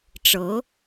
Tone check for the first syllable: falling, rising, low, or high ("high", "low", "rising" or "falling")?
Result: rising